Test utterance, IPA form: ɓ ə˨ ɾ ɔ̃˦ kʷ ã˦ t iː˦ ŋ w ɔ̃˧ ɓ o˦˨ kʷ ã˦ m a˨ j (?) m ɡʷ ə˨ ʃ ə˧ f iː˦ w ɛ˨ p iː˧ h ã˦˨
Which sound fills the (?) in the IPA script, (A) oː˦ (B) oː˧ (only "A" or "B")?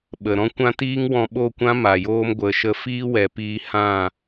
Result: A